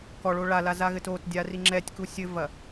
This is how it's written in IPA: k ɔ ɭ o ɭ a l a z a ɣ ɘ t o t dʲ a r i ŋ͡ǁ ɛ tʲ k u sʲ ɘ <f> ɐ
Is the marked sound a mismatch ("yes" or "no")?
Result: yes